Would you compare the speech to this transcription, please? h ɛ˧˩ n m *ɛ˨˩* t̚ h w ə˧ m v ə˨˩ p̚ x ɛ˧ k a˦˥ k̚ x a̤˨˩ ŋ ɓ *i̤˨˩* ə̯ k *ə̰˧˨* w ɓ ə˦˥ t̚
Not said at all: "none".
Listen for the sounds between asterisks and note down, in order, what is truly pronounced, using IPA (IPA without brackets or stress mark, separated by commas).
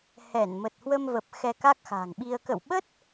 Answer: ə˨˩, i˧, ə̰˧˨